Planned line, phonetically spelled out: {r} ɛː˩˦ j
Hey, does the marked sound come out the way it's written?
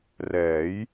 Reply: yes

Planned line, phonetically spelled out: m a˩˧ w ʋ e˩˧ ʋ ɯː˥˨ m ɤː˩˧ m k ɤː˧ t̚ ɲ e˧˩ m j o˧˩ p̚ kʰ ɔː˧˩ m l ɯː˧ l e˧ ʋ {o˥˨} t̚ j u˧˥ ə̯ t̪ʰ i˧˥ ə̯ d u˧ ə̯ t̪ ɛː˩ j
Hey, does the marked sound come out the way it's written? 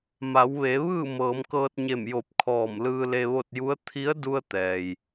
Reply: yes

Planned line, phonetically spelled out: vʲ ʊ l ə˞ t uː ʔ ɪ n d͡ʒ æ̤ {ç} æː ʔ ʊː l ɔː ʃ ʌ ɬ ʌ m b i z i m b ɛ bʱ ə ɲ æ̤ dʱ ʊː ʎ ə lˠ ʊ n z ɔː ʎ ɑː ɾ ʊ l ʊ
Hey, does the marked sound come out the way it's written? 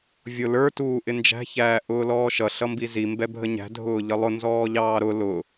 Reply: yes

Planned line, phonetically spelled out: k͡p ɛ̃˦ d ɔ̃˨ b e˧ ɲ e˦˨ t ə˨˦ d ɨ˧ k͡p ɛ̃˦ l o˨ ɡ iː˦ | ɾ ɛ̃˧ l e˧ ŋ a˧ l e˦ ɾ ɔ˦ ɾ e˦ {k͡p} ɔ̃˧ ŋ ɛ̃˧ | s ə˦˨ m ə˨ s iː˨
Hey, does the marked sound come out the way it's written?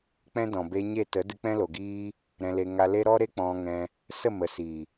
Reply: yes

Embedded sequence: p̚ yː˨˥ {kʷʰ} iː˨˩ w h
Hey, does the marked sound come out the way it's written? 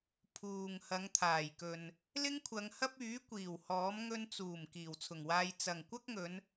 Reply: no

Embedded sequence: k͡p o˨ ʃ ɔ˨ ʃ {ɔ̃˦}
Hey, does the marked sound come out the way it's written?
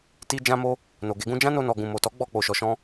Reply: no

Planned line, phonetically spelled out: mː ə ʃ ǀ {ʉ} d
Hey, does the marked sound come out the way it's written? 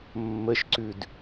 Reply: yes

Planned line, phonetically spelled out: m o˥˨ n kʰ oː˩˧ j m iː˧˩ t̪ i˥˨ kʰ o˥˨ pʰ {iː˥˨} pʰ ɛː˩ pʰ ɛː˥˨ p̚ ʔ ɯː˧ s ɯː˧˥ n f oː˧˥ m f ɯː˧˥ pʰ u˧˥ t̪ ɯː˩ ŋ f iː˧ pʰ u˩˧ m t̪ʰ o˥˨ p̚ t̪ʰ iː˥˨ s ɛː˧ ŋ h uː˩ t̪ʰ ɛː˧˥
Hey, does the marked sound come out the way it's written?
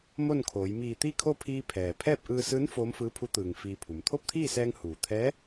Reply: no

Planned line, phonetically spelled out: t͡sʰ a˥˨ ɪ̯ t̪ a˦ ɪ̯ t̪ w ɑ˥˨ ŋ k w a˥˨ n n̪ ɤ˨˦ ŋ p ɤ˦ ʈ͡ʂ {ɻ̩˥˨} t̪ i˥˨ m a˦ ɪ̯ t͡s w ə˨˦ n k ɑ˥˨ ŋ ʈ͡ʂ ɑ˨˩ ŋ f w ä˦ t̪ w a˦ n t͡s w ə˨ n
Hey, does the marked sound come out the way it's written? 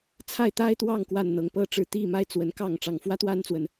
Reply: yes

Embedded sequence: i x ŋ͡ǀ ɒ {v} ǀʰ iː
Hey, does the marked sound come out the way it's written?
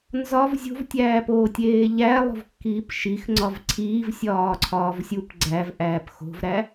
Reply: yes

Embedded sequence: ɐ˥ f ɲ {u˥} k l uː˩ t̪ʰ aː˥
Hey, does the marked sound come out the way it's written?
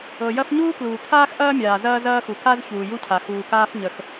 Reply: no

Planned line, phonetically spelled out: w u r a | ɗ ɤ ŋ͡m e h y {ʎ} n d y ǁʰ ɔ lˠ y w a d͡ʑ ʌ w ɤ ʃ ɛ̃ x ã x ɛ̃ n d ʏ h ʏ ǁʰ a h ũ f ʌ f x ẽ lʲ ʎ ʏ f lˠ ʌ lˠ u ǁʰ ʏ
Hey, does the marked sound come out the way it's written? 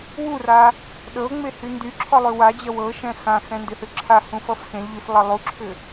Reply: no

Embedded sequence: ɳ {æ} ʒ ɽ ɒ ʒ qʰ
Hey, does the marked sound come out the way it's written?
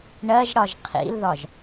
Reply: no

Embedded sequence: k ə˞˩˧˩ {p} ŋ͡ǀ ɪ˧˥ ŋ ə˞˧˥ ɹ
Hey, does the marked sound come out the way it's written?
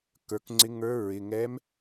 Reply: no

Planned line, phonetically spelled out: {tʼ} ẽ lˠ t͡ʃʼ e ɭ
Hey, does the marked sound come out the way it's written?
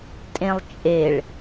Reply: yes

